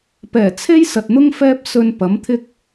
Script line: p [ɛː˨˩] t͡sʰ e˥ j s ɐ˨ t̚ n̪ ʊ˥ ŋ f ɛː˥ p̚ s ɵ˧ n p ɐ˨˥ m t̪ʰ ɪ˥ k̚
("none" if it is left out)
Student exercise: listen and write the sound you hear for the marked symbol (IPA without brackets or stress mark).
ɛː˨˩